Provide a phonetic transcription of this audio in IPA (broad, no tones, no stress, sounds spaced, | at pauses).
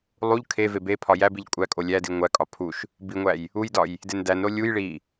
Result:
lˠ u ʎ kʰ e v e b e pʰ ɒ j æ b i ʎ kʷʼ æ kʼ o lʲ æ d i ŋʷ æ kʼ ɒ pʰ u ʃ | b i ŋʷ æ j | u j d ɒ j | d e n d æ n ɾ o lʲ u j ɭ i